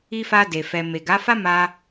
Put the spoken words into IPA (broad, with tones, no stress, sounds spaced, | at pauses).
i˧ f a˧ d e˨ f ɛ˨ m e˨ ɡ a˨˦ f a˦ m a˧